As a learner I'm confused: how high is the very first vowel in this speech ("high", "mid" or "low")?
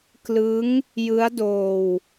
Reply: high